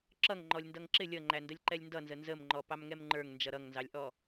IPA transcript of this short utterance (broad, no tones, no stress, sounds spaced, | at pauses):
ǁ ʌ ŋ ŋ͡ǃ ɔ lʲ n d ʌ ŋ ǁ ɪ lʲ ʌ ŋ͡ǃ æ n d ə lʲ ǃ ɛ lʲ n d ʌ n z ə n z ə m ŋ͡ǃ ɔ p ɑ m ŋ ɛ m ŋ͡ǃ ə˞ ŋ n d͡ʒ ʌ ɾ ʌ ŋ n z ɑ lʲ ʔ ɔ